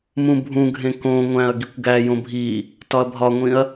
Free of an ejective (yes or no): yes